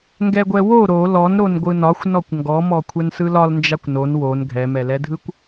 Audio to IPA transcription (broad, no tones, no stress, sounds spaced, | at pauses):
ŋ ɡ ɛ ɡʷ ɛ w o ɾ o l ɔ n ɾ o n ɡʷ ɯ n ɒ xʷ n ɔ kʷ ŋ ɡ ɔ m ɔ kʷʰ ɛ n s ɯ l ɒ l n d͡ʒ a kʷ n o n w o n ɡʱ ɛ m ɛ l ɛ dʱ ɯ kʷ